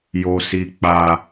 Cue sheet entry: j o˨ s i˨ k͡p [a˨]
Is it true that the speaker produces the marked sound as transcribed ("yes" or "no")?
yes